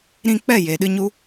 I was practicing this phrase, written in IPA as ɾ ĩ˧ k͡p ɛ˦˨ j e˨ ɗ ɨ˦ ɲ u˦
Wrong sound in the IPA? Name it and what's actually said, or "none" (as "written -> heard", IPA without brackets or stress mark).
none